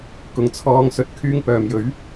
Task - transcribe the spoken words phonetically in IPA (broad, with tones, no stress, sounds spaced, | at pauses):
k ʊ˨ ŋ t͡sʰ ɔː˧ ŋ s ɵ˧ t̚ kʰ yː˧ ŋ p œː˨ m j ɵ˨˥ ɥ